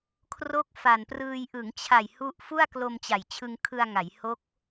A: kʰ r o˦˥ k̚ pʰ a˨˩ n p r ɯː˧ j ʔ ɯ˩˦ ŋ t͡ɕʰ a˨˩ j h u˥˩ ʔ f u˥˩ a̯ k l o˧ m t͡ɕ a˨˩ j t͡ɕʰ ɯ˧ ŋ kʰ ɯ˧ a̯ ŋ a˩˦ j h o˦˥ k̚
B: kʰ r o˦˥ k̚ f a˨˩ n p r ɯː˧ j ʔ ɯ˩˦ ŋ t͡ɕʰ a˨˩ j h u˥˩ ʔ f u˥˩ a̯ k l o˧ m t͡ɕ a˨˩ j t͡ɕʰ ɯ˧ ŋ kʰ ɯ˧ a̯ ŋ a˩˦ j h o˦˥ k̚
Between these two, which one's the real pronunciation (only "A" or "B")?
B